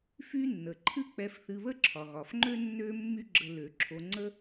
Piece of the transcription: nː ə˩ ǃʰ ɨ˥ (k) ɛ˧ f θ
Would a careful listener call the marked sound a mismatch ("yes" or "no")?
yes